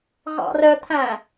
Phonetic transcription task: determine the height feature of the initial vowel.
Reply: low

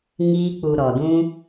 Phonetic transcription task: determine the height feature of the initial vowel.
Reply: high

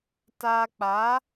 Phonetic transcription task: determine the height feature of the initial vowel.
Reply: low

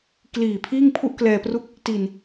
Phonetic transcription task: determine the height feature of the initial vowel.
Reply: high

